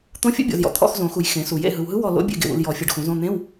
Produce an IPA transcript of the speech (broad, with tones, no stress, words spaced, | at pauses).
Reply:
t̪õ˧˥fʲo̰˧˥bʲɔ̰˨zjɔ̰˨ t̪ʰɔ̰˧˥˧xzõ˨˩˦xu˨j xẽ˨˩˦su˨˩˦jḛ˧˥˧ ɦɯ˨wɦɯ˧˥ wɔ˦˨lo̰˧˥ bʲḛ˦˨ɡḛ˨wṵ˨l jɔ˨˩˦ fʲɤ˨ɖxũ˨˩˦zõ˧˥˧ n̪ẽ˧˥˧w